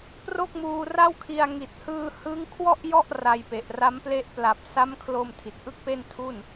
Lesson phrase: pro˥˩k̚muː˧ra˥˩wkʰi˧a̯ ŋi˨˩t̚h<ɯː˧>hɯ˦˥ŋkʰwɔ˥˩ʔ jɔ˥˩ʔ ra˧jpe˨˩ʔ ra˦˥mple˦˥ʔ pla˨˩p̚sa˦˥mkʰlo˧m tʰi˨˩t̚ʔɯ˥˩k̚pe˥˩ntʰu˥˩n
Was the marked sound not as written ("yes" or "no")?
no